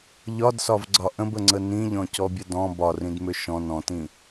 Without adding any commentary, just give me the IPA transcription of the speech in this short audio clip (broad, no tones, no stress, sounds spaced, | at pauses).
ʎ ɒ d s ɒ v ɡ͡ǀ ɒ ʔ ə̃ b ə ŋ͡ǀ ə n ĩ ʎ ɔ̃ c ɔ bʲ ə d ɔ̃ b ɒ r ĩ d m ʏ ʃ ɔ̃ n ɔ̃ t ĩ